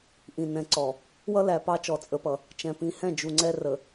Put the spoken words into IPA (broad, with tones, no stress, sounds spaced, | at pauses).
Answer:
ʔ ĩ˨ n ɛ̃˨ ǀ ɔ˨ | w ʌ˦ l æ˨ p ɑ˦ t͡ʃ ɔ˨ t͡sʼ ə˨˦ p ʌ˨ | t͡ʃ ɛ̃˨ p ĩ˨ h ɛ̃˦˨ d͡ʒ u˨ ŋ͡ǀ ɛ˦ r ə˨